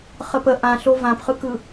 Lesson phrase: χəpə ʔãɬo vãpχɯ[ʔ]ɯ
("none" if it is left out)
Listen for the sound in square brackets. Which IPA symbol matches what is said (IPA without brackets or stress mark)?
k